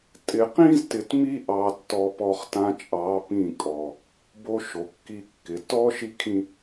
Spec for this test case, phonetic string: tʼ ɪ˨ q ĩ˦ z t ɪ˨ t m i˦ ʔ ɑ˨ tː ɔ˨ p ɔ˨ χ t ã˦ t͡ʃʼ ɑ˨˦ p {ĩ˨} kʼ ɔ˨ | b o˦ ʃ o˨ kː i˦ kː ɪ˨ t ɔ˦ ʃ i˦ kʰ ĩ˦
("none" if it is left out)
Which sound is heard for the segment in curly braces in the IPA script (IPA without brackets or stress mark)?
ĩ˦˨